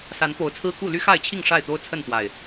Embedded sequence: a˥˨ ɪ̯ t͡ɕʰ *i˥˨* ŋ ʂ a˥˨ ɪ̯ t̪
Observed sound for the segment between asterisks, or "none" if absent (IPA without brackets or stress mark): i˥˨